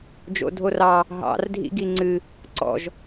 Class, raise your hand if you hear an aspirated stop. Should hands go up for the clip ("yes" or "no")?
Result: no